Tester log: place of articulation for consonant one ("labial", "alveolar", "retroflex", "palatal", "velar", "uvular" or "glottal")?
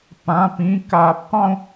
labial